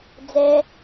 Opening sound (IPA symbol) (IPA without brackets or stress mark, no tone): d͡z